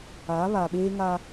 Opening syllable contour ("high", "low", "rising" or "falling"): rising